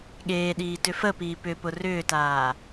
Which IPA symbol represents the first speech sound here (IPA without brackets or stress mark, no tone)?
ɠ